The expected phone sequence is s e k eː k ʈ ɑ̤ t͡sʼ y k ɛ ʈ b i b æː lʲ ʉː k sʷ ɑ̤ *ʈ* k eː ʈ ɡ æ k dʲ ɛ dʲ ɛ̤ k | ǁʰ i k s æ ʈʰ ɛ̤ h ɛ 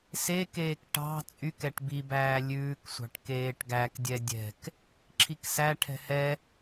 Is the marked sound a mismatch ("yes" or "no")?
no